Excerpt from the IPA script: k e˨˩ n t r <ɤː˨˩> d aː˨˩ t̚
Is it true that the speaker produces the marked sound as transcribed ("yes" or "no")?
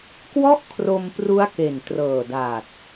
yes